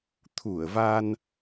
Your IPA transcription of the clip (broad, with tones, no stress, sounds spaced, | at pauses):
t̪ʰ u˧˩ ə̯ v a˧ n